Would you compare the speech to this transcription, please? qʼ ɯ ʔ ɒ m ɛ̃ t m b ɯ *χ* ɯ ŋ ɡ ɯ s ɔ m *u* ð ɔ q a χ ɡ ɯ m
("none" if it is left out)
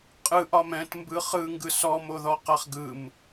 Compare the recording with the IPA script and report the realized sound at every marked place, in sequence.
χ, o

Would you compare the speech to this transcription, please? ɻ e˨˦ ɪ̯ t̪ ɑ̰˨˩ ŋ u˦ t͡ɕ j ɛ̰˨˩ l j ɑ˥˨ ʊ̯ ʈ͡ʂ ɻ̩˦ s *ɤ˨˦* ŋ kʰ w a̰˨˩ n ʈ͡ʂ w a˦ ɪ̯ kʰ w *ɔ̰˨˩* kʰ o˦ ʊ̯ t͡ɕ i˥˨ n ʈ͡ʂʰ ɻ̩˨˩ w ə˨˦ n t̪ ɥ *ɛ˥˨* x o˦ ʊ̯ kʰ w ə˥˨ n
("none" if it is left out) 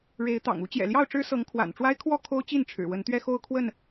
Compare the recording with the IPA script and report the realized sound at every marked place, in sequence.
ɤ˨˦, ɔ˥˨, ɛ˦

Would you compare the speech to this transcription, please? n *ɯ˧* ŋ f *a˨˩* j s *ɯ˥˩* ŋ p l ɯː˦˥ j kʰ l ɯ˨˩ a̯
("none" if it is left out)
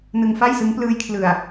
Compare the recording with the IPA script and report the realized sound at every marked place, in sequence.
ɯ˧, a˥˩, ɯ˦˥

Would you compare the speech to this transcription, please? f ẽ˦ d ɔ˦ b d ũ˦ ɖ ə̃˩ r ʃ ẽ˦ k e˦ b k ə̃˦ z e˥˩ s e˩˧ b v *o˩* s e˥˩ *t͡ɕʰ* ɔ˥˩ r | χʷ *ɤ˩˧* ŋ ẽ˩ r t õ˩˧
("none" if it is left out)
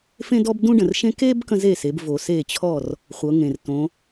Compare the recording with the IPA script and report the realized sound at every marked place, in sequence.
o˩, t͡ɕʰ, ɤ˩˧

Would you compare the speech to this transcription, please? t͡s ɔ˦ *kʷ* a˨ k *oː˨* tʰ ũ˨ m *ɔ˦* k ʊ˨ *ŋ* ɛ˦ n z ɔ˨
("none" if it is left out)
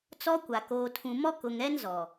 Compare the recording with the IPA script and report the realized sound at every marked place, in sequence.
kʷ, oː˨, ɔ˦, ŋ

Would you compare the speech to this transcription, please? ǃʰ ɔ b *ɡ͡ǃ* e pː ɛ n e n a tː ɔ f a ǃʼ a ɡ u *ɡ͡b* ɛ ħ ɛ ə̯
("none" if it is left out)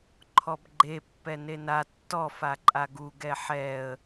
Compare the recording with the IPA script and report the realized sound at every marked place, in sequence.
ɡ͡ǃ, ɡ

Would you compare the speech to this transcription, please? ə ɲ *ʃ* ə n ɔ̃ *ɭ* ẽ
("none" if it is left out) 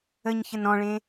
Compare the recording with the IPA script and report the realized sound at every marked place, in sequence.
ç, ɭ

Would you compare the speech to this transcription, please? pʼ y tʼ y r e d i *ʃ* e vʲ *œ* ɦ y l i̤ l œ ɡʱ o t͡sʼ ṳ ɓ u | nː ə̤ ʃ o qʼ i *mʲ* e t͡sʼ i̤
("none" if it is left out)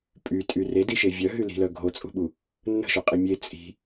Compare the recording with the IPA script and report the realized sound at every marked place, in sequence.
ʃ, œ, mʲ

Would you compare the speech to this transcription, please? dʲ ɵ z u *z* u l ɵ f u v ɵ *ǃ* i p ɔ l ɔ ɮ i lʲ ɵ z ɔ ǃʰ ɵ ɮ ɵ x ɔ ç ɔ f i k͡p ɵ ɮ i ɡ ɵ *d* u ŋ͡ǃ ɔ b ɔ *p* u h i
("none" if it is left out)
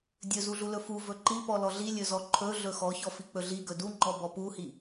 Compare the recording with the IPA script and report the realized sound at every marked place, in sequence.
ɮ, ǃ, d, p

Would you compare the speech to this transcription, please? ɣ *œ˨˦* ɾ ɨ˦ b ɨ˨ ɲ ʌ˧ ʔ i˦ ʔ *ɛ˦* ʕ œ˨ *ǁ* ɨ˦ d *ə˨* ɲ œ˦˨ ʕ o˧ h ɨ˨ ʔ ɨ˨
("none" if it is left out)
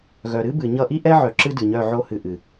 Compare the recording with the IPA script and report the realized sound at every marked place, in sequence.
œ˨, ɛ˦, ǁ, ɨ˨

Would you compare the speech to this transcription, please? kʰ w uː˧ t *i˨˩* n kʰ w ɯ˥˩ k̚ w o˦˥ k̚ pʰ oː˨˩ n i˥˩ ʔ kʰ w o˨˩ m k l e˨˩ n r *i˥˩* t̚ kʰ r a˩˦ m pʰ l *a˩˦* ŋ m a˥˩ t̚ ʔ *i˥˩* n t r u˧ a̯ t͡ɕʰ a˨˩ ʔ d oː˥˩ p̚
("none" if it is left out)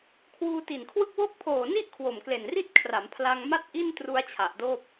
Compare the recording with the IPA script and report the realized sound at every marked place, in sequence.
i˨˩, i˥˩, a˧, i˥˩

